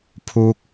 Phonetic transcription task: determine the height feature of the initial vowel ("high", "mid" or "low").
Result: high